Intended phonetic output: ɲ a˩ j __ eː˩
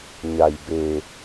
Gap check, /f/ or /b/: b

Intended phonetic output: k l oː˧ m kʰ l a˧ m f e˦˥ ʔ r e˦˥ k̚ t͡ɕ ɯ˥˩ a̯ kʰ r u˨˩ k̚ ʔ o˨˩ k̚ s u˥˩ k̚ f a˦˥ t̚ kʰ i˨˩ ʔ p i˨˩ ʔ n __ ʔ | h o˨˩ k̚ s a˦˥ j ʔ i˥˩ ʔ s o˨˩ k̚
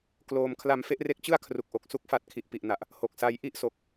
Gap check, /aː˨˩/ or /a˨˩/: a˨˩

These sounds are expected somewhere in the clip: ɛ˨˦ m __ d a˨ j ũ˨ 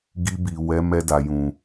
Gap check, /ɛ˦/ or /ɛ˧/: ɛ˧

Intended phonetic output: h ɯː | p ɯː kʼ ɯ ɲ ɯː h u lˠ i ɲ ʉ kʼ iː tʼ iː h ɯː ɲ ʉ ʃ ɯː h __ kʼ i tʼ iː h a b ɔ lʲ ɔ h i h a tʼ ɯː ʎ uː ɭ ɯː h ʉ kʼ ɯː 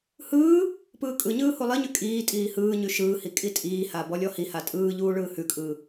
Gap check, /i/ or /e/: i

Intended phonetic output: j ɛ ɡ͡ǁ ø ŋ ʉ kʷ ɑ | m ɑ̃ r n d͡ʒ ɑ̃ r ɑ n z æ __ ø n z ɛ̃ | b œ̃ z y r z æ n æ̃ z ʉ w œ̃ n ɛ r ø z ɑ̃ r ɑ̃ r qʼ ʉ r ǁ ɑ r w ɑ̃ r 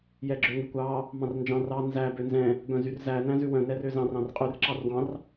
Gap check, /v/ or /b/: b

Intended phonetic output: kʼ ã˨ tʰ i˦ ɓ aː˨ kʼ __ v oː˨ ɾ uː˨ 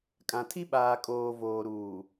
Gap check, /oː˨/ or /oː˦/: oː˨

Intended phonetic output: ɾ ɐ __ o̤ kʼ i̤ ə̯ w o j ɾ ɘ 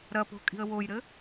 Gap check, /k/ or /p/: p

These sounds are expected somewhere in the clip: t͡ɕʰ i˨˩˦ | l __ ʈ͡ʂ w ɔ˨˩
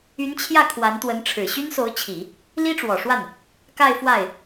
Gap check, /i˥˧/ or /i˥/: i˥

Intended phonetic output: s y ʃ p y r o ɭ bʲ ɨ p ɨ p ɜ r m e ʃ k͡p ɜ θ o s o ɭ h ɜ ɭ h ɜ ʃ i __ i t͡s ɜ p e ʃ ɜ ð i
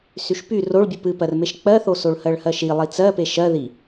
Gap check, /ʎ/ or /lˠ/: lˠ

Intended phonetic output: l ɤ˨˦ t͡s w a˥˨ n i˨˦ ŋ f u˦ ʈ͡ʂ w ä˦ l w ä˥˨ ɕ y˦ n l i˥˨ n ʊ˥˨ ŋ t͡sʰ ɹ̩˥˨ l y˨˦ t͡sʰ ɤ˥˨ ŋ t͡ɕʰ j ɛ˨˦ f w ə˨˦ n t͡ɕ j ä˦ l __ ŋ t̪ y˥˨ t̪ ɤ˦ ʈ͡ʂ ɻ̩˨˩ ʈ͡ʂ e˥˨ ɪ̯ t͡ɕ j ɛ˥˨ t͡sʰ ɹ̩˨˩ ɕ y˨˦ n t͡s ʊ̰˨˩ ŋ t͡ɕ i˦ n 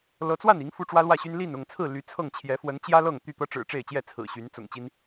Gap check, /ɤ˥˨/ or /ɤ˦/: ɤ˥˨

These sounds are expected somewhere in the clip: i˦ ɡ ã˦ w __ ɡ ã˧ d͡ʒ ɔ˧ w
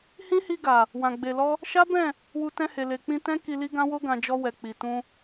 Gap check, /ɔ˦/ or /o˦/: o˦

